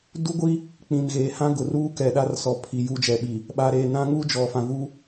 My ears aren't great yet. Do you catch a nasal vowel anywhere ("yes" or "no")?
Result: yes